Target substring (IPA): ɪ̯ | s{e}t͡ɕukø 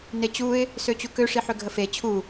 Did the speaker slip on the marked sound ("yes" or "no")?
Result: yes